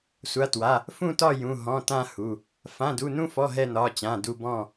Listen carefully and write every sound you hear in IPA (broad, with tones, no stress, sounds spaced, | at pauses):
sʷ a˩˧˩ t w a˩˧˩ | f ũ˦˨ t ɒ˦˨ j ũ˩˧˩ ɦ ɔ̃˩˧˩ t ã˦˨ h u˩˧˩ | f ã˩˧˩ d u˩˧˩ n ũ˦˨ f ɔ˩˧˩ ɦ ɛ˦˨ n ɒ˩˧˩ t͡ɕ ã˩˧˩ d u˦˨ b ɔ̃˦˨